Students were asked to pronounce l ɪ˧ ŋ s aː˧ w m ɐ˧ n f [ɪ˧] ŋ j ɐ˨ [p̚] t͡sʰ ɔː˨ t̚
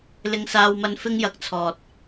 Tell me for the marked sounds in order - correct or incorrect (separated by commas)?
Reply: correct, incorrect